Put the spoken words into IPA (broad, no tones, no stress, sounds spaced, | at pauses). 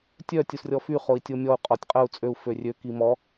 tʲ œ tʲ u s rʲ ɔ f y χ o i̯ tʲ o mʲ ɔ u̯ qʼ ɔ tʲ qʼ ə u̯ t͡sʼ ø u̯ f ø rʲ ø k i m ɔ